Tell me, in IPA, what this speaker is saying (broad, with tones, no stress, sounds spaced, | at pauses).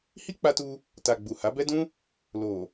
h i˦ k͡p a˧ t u˧ | t a˨ ɡ͡b u˨ h a˨˦ b ɛ˦ d ũ˦ | l o˨